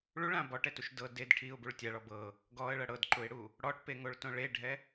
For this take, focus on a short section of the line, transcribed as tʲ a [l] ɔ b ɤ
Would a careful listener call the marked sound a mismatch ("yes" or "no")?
yes